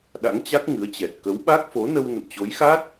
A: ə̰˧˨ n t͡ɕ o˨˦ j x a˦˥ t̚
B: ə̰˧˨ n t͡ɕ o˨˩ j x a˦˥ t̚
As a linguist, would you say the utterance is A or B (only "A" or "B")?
A